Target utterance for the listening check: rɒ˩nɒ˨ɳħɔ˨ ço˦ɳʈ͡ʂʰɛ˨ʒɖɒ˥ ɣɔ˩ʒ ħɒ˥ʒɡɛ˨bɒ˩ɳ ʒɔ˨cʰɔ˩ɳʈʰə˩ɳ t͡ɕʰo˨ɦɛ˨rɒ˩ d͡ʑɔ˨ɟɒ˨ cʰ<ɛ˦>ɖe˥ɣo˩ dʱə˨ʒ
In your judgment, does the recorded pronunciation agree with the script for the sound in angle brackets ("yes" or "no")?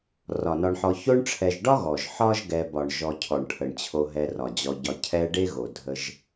yes